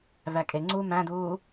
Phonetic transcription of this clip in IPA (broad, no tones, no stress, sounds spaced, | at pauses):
v æ kʼ e ŋ͡ǀ uː m æ̃ d uː